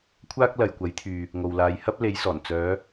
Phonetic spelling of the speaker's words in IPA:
kʷʰ aː˥ k̚ l ɐ˨ j kʷ ɐ˨˥ j t̪ʰ yː˨ | ŋ o˨ w l aː˨˧ j h ɐ˥ p̚ l e˨˧ j s ɔː˨˩ n t͡s œː˨˧

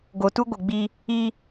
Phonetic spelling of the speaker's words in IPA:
ɡ o˨ t u˦ ɡʷ ɪ˨ ɡ͡b i˦ | i˦

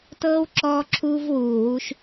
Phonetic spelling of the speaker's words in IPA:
t ɤː˦ w ǁ ɔː˧ ǁʰ uː˧ v w uː˨ w u˧ ʃ

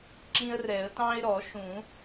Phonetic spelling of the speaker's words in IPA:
ǁ ĩ˦ ə̯ r ɛ˨˩˦ ə̯ t ɑ̃˦ ɪ̯ ɾ ɔ˨˩˦ ʃ ũ˨˩˦

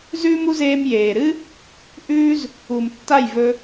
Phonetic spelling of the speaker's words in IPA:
z ʉː˦ m u˦ z eː˧ m j eː˨ ɾ ɨ˦ | ʔ ʉː˦ z | u˨ m tː a˦˨ j v ɵ˦

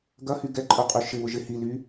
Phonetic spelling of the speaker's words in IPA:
ɡ ɐ h y ɡ ɛ ǃʼ œ qʼ y ʃ ɪ β ʊ ʒ ɪ h i l y

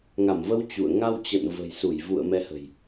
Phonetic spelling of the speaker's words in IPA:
ŋ a˧˩ m v ə˨˦ w t͡ɕ ṵ˧˨ ə̯ ŋ a˧ w t͡ɕ ə̰˧˨ n v ə̤˨˩ j s u˧˩ j v ṵ˧˨ ə̯ m ɛ˨˦ h ə̤˨˩ j

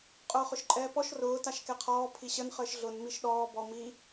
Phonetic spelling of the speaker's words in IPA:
qʼ ʊː χ ʊ ʃ ǃʼ ɛː p ɔ ʃ r ʊː t a ʃ k ɛ qʰ ɔː pʰ i ɕ ə n χ əː ʃ ɮ ʊ n m i ʃ ɗ ɔː b ɔ m i

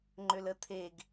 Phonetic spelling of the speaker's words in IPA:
ŋ͡ǃ ø l ə t̪ʰ e ɡ

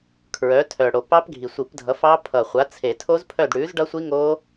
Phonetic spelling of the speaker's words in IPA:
kʰ ɹ œ˨˥ tʰ œ˨˩ ɽ o˨˩ p ɑ˦˥ p ɡʱ i˨˩ sʷ i˨˩˦ p dʱ ʌ˨˥ f ɑ˦˥ pʰ ʌ˨˩ χʷ a˨˥ t͡sʰ e˨˩˦ tʰ o˦˥ z pʰ œ˦˨ d ɽ ʉ˨˥ z ɖ ʌ˦˥ sʷ i˦˥ ŋ o˦˥

